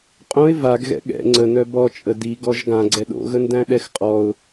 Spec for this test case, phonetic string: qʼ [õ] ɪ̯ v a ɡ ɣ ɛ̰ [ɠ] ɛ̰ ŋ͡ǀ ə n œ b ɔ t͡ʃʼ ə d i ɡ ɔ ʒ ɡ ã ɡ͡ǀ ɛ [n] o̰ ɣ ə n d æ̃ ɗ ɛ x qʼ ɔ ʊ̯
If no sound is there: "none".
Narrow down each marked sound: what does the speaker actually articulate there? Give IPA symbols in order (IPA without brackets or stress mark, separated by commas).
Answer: õ, ɠ, ɗ